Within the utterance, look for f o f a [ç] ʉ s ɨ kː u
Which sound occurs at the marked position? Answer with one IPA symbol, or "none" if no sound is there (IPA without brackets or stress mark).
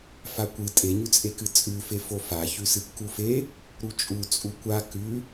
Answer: ç